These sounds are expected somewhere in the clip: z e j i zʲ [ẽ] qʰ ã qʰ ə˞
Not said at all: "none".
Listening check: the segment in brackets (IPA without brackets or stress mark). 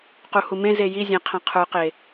ẽ